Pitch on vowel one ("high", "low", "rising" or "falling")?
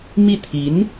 falling